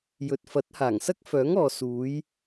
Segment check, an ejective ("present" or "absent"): absent